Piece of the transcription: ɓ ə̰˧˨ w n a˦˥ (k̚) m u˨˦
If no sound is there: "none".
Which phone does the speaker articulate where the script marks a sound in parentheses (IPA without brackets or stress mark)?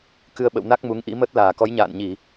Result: k̚